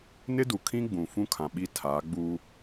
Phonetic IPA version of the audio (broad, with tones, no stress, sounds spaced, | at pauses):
n ɪ˦ d u˨ kʰ ĩ˦ ɡ͡b ũ˨ f ũ˦ kʰ ã˨ ɓ i˦˨ tʰ aː˨˦ ɡ͡b uː˦